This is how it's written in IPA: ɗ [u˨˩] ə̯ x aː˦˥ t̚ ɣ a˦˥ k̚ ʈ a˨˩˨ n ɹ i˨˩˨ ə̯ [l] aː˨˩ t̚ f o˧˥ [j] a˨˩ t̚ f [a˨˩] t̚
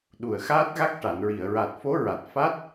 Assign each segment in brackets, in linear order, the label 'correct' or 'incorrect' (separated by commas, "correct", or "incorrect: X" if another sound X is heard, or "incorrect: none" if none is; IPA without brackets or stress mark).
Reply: correct, incorrect: ɹ, incorrect: ɹ, incorrect: a˦˥